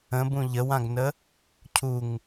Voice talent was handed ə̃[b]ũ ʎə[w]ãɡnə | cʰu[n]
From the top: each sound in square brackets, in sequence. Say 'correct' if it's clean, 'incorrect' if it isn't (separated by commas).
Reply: correct, correct, incorrect